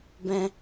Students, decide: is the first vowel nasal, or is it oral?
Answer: nasal